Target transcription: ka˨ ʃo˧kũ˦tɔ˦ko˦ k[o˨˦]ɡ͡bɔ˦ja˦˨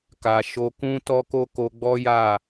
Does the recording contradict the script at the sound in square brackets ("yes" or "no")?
yes